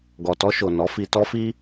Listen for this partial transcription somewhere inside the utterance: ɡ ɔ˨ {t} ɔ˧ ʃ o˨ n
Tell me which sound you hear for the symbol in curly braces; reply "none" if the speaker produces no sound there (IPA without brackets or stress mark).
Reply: t